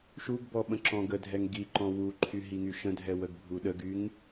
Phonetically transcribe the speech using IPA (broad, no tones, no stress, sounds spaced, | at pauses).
ʃ u ɡ b ɔ ɓ ə̃ ǁ ɔ̃ ɡ ə dʱ ɛ ŋ ɡ i ǃ ɔ̃ w u ǃʰ y ɦ i ŋ y ʃ ə̃ dʱ ɛ w ə ɡ bʱ u ɗ ə ɡ y ŋ